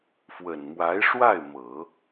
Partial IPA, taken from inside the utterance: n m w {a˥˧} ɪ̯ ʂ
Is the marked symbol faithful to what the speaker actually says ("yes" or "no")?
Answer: no